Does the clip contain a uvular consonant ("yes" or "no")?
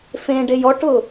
no